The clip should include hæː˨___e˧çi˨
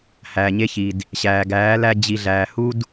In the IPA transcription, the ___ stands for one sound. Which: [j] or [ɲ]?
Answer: ɲ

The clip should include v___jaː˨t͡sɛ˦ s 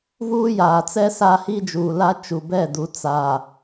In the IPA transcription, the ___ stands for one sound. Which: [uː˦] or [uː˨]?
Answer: uː˦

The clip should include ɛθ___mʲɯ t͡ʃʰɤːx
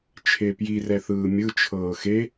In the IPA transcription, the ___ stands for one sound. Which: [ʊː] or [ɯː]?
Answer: ɯː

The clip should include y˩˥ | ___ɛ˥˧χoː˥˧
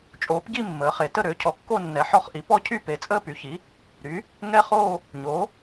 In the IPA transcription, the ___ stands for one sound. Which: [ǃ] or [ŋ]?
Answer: ŋ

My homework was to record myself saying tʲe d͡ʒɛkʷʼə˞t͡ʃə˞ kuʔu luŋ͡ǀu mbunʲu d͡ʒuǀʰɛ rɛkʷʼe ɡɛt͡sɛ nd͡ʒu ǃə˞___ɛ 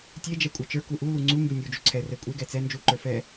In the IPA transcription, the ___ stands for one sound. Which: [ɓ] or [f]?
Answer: f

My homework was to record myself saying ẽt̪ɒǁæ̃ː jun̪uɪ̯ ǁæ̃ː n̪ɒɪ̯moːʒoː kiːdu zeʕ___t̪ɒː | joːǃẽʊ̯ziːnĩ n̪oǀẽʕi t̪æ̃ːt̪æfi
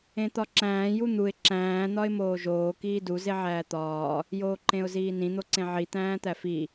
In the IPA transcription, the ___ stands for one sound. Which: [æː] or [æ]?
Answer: æː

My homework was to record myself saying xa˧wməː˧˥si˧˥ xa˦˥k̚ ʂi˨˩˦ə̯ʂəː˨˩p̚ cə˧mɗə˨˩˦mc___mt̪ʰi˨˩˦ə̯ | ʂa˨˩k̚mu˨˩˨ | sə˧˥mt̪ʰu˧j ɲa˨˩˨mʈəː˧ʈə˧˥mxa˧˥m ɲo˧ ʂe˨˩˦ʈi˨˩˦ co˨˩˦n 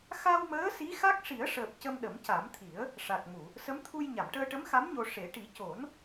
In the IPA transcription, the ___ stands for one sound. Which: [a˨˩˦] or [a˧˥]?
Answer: a˨˩˦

